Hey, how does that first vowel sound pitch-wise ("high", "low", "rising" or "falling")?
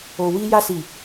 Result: low